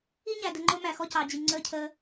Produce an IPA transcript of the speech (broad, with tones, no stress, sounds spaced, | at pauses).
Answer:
i˦ ɲ æ˨ d ə˨ ŋ͡ǃ ʊː˦ m æ˨ x ɔ˦ c ɑ˨ d͡ʑ i˨ ŋ͡ǀ əː˦ cʰ əː˦